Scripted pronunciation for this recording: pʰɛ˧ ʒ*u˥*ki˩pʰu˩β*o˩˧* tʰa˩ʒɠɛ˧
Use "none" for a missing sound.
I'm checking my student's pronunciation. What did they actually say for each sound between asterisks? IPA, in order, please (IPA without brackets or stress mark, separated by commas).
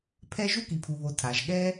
u˥, o˩˧